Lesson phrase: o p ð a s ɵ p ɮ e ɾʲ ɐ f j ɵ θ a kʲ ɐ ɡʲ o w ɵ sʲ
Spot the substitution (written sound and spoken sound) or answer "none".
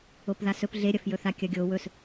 sʲ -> s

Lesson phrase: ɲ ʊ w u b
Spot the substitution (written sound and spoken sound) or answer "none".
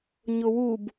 none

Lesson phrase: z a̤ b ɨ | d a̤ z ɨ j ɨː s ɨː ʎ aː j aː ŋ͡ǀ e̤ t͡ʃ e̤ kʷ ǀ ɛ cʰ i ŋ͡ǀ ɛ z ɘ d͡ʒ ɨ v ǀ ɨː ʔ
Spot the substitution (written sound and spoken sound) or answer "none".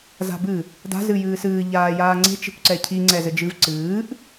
none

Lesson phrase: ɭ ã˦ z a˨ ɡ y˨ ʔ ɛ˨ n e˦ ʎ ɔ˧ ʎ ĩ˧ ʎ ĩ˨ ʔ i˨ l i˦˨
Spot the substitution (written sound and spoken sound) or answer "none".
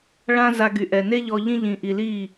a˨ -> a˧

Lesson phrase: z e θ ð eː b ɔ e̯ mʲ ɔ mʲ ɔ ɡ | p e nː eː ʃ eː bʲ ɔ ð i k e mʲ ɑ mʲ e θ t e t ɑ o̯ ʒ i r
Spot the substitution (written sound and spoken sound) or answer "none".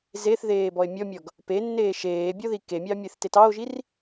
none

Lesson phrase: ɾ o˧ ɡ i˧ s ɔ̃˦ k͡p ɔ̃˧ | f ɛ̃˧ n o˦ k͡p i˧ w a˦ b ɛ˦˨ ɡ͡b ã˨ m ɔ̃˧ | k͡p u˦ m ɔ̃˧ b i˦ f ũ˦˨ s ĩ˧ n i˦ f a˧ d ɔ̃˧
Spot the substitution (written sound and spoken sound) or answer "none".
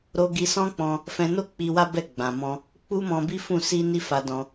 ĩ˧ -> i˧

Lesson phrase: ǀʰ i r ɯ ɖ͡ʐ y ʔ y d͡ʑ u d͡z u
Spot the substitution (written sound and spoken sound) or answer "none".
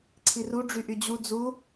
ɯ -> u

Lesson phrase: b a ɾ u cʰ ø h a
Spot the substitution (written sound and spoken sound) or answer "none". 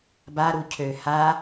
none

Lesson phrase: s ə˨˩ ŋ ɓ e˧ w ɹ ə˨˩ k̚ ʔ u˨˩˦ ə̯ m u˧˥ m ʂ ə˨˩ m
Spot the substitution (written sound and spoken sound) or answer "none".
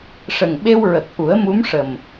s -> ʂ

